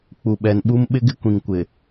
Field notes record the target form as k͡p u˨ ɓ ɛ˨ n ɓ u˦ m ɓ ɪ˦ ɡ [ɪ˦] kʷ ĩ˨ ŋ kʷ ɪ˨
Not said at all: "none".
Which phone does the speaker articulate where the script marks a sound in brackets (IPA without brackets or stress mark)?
ɪ˦